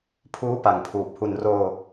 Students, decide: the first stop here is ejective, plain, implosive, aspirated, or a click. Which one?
aspirated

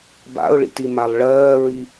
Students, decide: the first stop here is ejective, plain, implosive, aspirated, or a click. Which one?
plain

